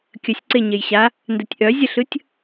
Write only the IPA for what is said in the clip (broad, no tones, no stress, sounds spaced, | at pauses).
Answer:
kʲ ə sʲ ǀ e ɲ e j ɕ a | n d ə tʲ ʔ œ zʲ ʌ ɬ ɯ tʲ